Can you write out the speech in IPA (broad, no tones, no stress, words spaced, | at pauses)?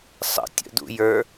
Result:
sˤə̰tʲə̰dṵjə˞